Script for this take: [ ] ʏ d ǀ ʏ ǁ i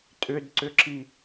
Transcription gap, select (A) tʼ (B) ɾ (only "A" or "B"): A